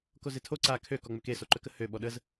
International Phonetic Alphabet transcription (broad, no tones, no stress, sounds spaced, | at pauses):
k o z e tʰ o ǀ a kʰ ø k ɔ ŋ͡m ø k e s o ǃ ø k ə h ø ɓ ɔ ɗ ə z